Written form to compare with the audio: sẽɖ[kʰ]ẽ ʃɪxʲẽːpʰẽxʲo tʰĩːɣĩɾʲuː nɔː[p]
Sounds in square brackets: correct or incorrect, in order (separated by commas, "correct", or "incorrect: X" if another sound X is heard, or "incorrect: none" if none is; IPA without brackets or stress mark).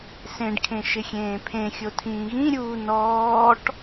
correct, incorrect: ʈ